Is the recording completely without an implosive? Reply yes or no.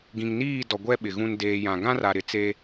no